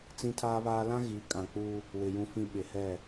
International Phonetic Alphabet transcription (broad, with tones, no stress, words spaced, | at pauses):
t͡sĩ˦tʰaː˦βaː˦ lã˦ɣi˨˦kʼã˨ k͡pu˦ | wɪ˨ jũ˦fĩ˦ ɓɪ˨hɛ˦˨